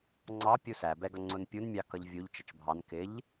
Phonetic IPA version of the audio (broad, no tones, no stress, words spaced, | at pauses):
ŋ͡ǀɑ pʲusæbɛɡʌ ŋ͡ǀʊnpʲunmʲɑ kʌʎvʲuʎ t͡ʃət͡ʃbʱɑn kɪʎ